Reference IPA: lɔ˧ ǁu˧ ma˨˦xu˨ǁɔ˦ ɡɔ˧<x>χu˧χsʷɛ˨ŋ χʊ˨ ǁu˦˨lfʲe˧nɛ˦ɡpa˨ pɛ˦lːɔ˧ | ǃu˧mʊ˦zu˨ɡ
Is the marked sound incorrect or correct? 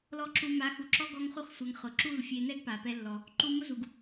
incorrect